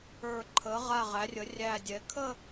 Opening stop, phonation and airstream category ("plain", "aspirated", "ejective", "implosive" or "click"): click